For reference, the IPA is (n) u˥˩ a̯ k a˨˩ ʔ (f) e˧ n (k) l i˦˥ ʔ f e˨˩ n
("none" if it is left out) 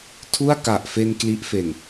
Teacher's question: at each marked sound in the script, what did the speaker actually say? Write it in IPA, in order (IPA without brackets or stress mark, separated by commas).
tʰ, f, k